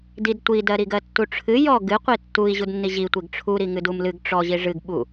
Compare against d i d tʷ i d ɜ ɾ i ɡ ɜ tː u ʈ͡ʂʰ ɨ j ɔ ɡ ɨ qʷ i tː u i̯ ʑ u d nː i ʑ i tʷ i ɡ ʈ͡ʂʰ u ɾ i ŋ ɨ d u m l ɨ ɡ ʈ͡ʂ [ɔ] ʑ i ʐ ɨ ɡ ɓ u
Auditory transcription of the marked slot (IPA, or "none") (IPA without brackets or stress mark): ɔ